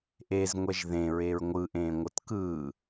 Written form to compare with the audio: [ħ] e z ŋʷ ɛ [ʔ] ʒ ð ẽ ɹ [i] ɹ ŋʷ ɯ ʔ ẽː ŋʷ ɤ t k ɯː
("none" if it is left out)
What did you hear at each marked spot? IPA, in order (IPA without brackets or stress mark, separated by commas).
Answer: ʔ, none, e